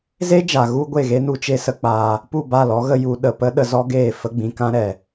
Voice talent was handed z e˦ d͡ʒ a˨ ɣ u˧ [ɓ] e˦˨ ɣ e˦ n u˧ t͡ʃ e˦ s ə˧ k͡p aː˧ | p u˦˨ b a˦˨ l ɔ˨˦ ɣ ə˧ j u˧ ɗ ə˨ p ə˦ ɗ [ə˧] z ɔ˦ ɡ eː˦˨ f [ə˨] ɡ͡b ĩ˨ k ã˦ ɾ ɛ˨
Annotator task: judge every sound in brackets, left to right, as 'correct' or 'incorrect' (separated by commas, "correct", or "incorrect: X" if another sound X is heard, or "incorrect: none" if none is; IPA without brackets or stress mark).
incorrect: ɡʷ, correct, incorrect: ə˧